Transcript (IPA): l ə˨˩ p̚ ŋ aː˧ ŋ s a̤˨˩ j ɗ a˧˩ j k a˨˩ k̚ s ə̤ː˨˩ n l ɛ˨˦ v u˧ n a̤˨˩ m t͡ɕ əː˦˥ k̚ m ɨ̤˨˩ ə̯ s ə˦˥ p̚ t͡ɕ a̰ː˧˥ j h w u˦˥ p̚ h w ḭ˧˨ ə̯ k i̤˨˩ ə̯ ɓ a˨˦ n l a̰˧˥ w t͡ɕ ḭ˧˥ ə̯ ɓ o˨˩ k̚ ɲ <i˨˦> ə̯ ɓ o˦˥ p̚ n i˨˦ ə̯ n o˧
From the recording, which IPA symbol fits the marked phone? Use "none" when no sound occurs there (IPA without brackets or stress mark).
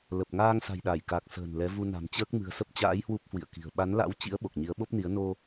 i˨˦